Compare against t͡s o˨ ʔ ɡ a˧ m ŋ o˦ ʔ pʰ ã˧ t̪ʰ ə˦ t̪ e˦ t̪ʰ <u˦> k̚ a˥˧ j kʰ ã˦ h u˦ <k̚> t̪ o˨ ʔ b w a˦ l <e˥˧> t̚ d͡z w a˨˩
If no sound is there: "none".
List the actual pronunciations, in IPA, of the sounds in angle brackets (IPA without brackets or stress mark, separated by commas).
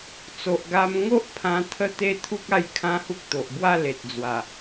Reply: u˦, k̚, e˨